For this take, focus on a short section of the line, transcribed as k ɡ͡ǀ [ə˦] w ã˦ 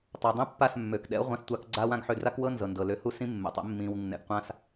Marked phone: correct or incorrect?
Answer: incorrect